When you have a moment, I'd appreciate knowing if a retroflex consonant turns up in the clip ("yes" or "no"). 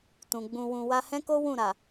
no